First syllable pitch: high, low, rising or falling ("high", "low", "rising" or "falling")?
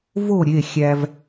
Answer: falling